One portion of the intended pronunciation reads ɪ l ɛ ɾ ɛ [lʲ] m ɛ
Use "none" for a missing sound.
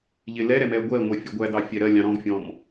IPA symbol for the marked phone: none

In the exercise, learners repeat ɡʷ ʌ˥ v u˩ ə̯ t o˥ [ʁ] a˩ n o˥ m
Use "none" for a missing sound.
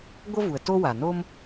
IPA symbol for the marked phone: w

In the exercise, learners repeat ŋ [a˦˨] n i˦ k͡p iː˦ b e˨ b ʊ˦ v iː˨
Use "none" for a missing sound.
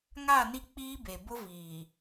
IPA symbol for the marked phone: a˦˨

